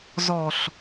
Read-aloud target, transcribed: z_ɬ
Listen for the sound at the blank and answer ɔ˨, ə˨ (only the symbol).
ɔ˨